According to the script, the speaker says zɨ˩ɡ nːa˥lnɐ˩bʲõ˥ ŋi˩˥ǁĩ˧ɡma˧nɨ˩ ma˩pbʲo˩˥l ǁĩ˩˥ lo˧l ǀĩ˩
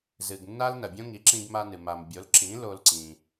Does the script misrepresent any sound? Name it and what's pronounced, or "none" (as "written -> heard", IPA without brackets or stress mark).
p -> m